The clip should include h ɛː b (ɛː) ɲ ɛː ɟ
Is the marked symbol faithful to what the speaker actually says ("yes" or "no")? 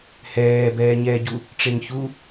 yes